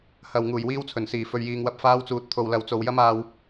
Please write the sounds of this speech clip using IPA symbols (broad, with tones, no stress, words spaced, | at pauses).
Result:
hɐ˨w ŋuː˨˩jwiː˧wt͡sʰɵ˨˩nsiː˨˩ fɵ˨ɥjiː˨ŋwɐ˧p̚ faː˧wt͡suː˨t̚ t̪ʰo˨wlɐ˨wt͡so˨w jɐ˥maː˧w